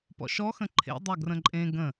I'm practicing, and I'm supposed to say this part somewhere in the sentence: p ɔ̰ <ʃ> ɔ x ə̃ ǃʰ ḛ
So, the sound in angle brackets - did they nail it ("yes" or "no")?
yes